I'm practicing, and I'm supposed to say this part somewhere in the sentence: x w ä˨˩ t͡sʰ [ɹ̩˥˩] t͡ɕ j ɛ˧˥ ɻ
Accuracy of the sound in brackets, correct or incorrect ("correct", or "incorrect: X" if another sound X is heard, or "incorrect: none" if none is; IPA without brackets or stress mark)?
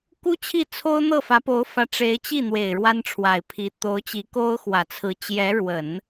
incorrect: ɹ̩˧˥